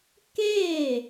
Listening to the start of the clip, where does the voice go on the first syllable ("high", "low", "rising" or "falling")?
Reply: falling